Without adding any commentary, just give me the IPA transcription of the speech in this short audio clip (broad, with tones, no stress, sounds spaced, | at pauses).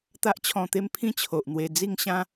t̪ a˦ ʔ t͡ɕʰ ɔ̃˧ t̪ e˦ m pʰ ĩ˥˧ t͡ɕʰ o˨ ʔ n̪ w e˧ d͡z i˥˧ ŋ ɕ ã˦